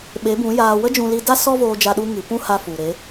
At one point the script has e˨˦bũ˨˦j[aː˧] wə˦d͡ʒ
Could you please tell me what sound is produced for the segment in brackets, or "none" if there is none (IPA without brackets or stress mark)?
aː˧